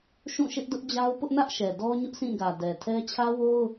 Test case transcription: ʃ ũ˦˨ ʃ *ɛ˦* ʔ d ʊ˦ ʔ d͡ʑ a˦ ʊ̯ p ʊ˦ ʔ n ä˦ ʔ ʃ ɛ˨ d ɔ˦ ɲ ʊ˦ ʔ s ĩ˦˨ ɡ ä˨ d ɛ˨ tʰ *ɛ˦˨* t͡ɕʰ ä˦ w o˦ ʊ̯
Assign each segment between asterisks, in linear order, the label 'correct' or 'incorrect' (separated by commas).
incorrect, incorrect